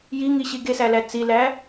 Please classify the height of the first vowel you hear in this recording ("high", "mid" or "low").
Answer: high